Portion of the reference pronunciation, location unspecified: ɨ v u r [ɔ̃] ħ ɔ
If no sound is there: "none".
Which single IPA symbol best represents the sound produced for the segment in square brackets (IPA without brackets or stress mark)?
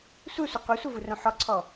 õ